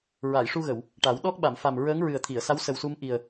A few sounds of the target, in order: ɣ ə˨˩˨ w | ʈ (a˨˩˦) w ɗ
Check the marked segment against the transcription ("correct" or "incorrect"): correct